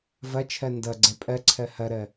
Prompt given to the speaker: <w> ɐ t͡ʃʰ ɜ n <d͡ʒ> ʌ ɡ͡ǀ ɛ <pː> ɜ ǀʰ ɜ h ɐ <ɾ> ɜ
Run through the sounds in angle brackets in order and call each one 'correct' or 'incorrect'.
incorrect, incorrect, incorrect, correct

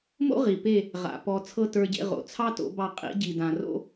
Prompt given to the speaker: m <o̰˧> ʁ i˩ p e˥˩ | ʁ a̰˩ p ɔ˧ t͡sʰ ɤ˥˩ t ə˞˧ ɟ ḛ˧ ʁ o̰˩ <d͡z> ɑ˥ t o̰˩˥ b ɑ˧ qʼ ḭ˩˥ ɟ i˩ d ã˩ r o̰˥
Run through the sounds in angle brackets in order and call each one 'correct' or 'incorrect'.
incorrect, incorrect

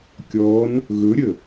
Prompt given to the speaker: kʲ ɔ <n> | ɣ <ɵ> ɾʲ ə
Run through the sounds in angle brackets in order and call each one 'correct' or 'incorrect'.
correct, correct

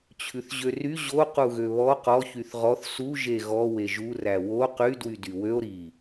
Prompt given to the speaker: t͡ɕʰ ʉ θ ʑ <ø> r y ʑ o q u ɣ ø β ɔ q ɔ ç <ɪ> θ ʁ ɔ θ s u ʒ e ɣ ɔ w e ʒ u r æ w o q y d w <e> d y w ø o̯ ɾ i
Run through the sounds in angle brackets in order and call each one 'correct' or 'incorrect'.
correct, incorrect, incorrect

